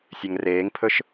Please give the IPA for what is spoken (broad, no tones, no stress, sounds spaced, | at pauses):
sʲ ɛ ŋ r eː ŋ pʰ ɵ ʃ